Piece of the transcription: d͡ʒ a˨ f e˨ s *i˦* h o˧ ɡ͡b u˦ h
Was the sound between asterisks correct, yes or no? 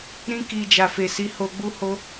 no